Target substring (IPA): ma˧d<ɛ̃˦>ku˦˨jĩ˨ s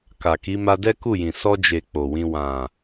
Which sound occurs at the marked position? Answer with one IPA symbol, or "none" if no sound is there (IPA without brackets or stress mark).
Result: ɛ˦